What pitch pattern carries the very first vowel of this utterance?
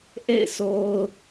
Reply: falling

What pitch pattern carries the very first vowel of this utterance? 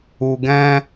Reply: low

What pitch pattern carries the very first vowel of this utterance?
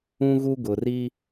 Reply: high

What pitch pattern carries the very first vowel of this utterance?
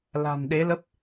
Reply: low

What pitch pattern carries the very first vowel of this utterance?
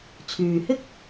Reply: low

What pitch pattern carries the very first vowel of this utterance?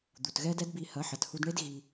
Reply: low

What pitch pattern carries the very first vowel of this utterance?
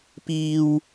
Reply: high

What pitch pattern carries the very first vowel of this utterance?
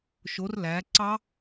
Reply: rising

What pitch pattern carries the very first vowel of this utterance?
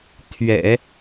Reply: low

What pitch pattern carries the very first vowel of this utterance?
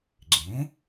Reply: rising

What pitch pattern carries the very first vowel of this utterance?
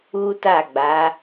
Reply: high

